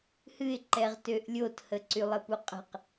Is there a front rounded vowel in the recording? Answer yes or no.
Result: yes